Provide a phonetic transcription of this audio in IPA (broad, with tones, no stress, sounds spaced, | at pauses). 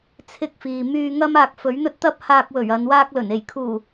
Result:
t͡sʰ ɪ˧ k̚ f iː˨ m yː˧ ŋ ɐ˥ m aː˧ k̚ f ɵ˨˥ ɥ n̪ ɵ˥ t̚ t̪ ɐ˥ p̚ h aː˧ k̚ w ɵ˨˩ ɥ ɐ˨˧ n w aː˥ k̚ l ɵ˨˩ n e˨˩ j kʰ uː˨˩